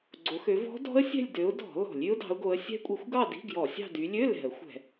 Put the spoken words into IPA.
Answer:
ɡ͡ǀ o˨˦ x ø˨˦ v ɔ̤˦˥ d ɔ̤˦˥ ə̯ sʲ ɛ̤˥˧ lʲ d ø˨˦ ʊ̯ d ɔ̤˧˩˧ l ɔ̤˧˩˧ lʲ y˦˥ ʊ̯ d ɑ̤˨˦ ʊ̯ ɡ o˨˦ ə̯ sʲ ɛ̤˦˥ kʷʼ i˨˦ xʷ ɡ ɑ˥˧ d i̤˧˥˧ ɡ j ɔ˧˩˧ sʲ ɑ̤˥˧ d y˨˦ lʲ ø˧˥˧ l ɛ̤˧˩˧ ə̯ xʷ ɛ̤˧˩˧

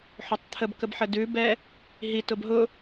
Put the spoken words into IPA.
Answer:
ħ o tˤ t̪ʰ ə b k ə b ħ ə d ʉ b ɛ | ɦ i t ʊ b ɦ ʊ

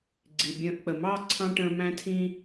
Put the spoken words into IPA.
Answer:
ɡ͡ǀ i˨ bʲ ə̃ː˧ ʔ k͡p ə˨ m ɑ˦˨ ǀʰ ɑ̃˦ ʈ ə̃ː˧ m æ̃˦ tʰ ĩ˦

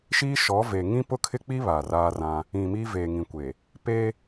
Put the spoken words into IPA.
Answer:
ʃ iː˦ ʃ ɔ˨˦ v e˨ ŋ ĩ˦ p ʊ˦ kʰ ɪ˦ k͡p i˦ β a˨ r aː˦ r ã˦ | ĩ˨ m iː˦ v eː˨ ŋ ĩ˨ kʷ e˨ | p e˦

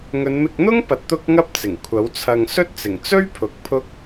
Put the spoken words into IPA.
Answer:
ŋ ɵ˨˧ n m ɪ˧ k̚ n̪ ʊ˥ ŋ p ɐ˨ t̚ t̪ ʊ˥ k̚ ŋ ɐ˥ p̚ t͡s ɪ˨˩ ŋ kʷʰ ɐ˨˥ w t͡sʰ ɐ˧ ŋ s ɵ˥ t̚ t͡s ɪ˨˩ ŋ t͡s ɵ˥ ɥ pʰ ʊ˨˥ k̚ pʰ ʊ˥ k̚

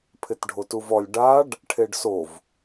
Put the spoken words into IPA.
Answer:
pʰ ɪ t ɖʱ o t u v ɔ lʲ ɖ a ɖ | ʈʰ e ɖ s o v

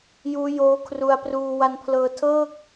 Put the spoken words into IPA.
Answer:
j uː˦˥ j oː˦˥ kʰ r u˧ a̯ p r uː˧ w a˧ n pʰ l ɤː˧ tʰ ɤː˥˩ k̚

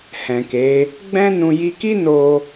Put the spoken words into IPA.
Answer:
h ɛ̃˨ k e˨˦ | ɡ͡b ɛ̃˦ n ũ˧ j i˧ k i˦ n o˧

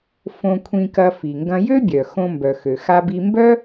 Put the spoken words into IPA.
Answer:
f õ˧ kʷʰ ĩ˧ k ɐ˧ f i˩ ŋ ɡ ɐ̃˧ j ø˥ bʲ œ˩ x õ˧ m b œ˩ x ø˩ x a˧ b i˧ m b œ˥

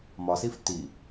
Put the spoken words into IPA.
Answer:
m ɒ s i f t i

